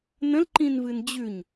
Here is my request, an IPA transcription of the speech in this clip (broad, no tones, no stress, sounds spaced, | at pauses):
n ə̃ l ǃ ĩ n v ɨ n d͡ʑ ʉ ɲ